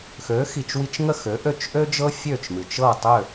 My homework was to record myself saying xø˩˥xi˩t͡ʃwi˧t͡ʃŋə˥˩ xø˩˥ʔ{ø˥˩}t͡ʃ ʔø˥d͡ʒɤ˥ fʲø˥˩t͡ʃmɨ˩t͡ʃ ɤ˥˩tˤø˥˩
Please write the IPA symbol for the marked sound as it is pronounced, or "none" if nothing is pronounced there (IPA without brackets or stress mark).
ø˥˩